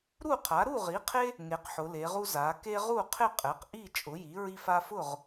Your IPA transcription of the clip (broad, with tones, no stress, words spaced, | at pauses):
ɾu˥˨qʰa˩˥ ɾu˥˨ʁi˩˥qʰe˦ | ŋe˩˧qħʊ˩˧le˩˧ʁu˦ za˩˧ke˦ ʁu˥˨qʰɪ˥˨ qʼɛ˩˥qʔi˥˨ t͡ʃʼʊ˩˥ji˩˥ɹi˦f a˦fʊ˥˨ʁ